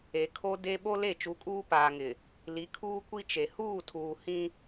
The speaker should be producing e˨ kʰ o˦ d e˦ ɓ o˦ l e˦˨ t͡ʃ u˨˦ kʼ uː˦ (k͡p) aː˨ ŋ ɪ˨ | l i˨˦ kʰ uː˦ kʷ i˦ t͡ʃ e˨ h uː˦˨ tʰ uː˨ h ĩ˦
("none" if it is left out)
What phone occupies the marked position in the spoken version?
p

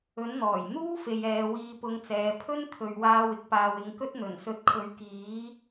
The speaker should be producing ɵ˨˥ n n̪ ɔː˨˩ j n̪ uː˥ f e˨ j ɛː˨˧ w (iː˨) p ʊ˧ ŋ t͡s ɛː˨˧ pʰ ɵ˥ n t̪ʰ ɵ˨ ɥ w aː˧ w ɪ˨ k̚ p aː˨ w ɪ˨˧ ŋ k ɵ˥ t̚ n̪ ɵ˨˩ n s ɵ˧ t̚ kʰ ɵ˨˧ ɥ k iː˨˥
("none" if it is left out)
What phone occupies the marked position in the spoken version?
iː˧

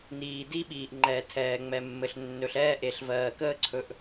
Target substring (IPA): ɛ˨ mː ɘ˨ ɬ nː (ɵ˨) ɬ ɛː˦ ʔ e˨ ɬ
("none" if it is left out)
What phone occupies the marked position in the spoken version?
ɵ˨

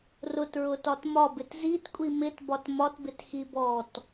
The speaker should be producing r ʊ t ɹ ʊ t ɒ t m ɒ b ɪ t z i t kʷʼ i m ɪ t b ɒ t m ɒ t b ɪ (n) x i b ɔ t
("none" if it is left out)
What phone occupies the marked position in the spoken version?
t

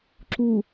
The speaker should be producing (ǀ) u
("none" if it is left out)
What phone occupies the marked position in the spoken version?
ǁ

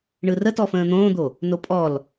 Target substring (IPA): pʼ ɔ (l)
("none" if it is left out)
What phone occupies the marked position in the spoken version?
l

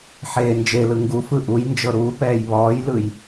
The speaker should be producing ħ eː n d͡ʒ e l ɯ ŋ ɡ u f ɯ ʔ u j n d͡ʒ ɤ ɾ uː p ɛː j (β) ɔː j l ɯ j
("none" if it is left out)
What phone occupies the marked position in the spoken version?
β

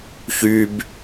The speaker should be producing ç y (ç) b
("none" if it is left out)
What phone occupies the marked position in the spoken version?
none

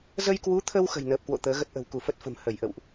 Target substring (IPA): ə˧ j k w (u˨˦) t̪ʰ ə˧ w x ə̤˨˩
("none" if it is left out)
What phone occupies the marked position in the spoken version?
u˨˦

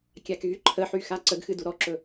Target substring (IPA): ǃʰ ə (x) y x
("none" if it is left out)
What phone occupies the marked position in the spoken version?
ħ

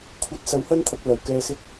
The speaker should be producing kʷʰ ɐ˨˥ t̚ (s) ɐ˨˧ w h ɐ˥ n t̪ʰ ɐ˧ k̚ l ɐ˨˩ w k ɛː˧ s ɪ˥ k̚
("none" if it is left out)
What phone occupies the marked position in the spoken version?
s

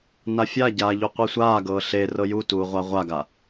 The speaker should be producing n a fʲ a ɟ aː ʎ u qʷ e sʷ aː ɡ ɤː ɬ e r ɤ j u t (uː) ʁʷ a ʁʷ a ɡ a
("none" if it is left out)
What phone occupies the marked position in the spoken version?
uː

